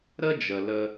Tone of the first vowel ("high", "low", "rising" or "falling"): high